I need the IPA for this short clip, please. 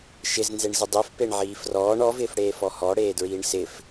ʃ ɪ z n z e ɳ z ɪ dˤ i f p e ɳ ʕ iː f r ɔː ɳ ɔ v ɪː f ɽ eː f ɔ h ɔ ɽ eː d ɹ iː ɳ s ɪ f

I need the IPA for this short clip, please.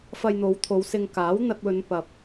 f ɐ˧ j n̪ o˨˧ w t̪ʰ o˨˧ w s ɪ˧ ŋ k aː˨˥ w n̪ ɐ˧ t̚ w ɵ˨˧ n p ɐ˨ p̚

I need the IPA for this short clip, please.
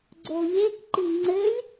ɡ͡ǀ o ʎ e k ǃ i ŋ͡ǀ ɘ lʲ

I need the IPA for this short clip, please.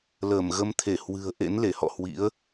l əː˧˩ m ɣ ə˧ m t̪ʰ e˧˩ h w ɨ̤˨˩ ə̯ ʔ ḛ˧˥ n l e˧˩ h ɔ̰˧˨ h w ḭ˧˥ ə̯

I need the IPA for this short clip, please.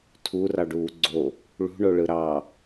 tʰ u r ɑ ɖ uː ɡ͡ǀ o | ɭ ṳ ɳ o ɭ ɯ ɾ ɑ

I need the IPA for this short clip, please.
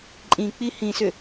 ǃʼ ĩ k͡p i h ĩ s ʏ

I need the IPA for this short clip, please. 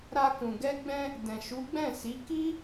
ɾ a˧ k ũ˨ ɡ ɛ˧ ɡ͡b ɛ̃˧ | d ɛ̃˨ ʃ u˨˦ ɡ͡b ɛ̃˦˨ s i˨˦ k i˦

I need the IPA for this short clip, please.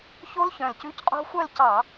ç o˦˥ l ç œ̃˨˩ l c ʉ˧˥˧ c qʼ o̤˦˥ xʷ œ˥˧ l c ɑ˧˩˧

